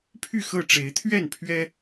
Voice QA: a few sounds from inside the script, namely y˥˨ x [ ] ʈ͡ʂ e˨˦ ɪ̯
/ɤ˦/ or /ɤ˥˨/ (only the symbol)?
ɤ˥˨